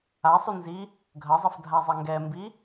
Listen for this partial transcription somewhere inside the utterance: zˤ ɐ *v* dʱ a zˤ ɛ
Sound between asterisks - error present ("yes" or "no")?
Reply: yes